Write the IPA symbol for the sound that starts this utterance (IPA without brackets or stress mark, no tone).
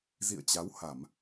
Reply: z